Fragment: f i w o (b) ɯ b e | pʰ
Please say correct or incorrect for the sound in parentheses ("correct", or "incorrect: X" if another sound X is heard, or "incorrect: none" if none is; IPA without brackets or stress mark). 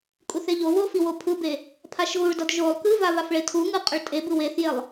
incorrect: pʰ